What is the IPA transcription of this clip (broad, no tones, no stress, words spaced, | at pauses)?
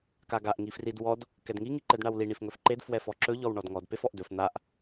kaɡaʔ ŋifrid wɔd | kɛdŋi ŋiǃɛdɳawli ɳifŋɵfǃed fwɛfɔǁɵ ʎɔwɳɔdŋɔd pefɔʔdɵf n̪aʔ